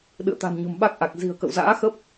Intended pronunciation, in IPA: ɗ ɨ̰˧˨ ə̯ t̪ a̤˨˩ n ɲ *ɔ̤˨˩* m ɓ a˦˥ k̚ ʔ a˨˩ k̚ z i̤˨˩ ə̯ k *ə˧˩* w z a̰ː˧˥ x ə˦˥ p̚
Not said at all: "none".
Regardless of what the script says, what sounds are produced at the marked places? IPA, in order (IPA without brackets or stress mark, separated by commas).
o̤˨˩, ə̰˧˨